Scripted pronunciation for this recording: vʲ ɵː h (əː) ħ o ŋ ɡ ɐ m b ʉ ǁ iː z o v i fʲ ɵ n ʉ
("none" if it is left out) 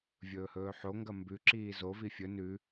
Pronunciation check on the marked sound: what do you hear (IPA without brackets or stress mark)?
ɵː